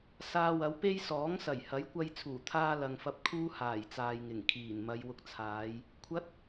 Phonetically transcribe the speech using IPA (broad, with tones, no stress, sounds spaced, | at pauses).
s aː˧ w ɐ˨˥ w p e˥ j s ɔː˨˥ ŋ s ɐ˨˩ j h ɐ˨˥ j kʷ ɐ˧ j t͡sʰ uː˨˩ t̪ʰ aː˧ l ɐ˨ ŋ f ɐ˧ p̚ kʰ uː˥ h aː˨˩ j t͡s aː˨ j ŋ ɪ˨˩ ŋ kʰ iː˨˩ n m ɐ˨˧ j w ʊ˧ k̚ t͡sʰ aː˨˧ j | kʷʰ ɐ˨˥ t̚